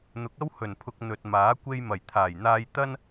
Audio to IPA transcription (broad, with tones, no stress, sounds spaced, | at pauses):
n̪ ʊ˨˥ k̚ ɐ˥ w h ɵ˨˩ n pʰ ʊ˨ k̚ n̪ ɵ˨ t̚ m aː˨˥ kʷ e˧ j m ɐ˨˩ j t̪ʰ aː˨˩ j n̪ aː˧ j t̪ ɐ˥ n